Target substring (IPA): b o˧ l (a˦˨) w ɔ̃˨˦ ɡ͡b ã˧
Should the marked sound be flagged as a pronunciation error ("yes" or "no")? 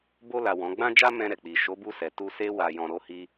yes